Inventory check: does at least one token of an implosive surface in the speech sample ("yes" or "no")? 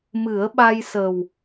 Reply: yes